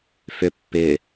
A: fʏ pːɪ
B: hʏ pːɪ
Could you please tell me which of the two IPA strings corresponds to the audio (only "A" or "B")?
A